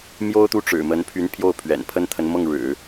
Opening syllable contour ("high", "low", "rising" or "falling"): high